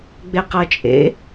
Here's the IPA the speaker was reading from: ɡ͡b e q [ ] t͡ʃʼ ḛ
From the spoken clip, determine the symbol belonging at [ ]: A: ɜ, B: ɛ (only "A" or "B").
A